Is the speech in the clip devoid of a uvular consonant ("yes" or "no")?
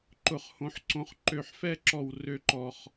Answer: no